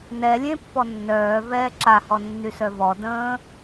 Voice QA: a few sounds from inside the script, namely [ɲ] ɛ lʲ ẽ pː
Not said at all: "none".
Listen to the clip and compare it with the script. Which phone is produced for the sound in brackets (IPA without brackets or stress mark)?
n